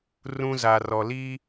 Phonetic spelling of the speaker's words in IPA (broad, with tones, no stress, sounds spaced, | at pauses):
r ũ˦ z a˨ r ɔ˨ l iː˦